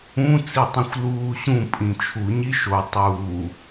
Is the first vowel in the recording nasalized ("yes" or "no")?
yes